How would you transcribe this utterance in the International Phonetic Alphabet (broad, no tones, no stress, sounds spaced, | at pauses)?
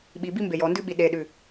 ɓ i b i m b e j ɔ n d ʉ ɓ i ɗ e ɗ ʉ